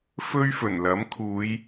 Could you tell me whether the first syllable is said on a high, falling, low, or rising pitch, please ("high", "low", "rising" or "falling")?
high